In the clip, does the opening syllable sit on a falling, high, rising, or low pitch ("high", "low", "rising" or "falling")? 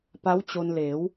rising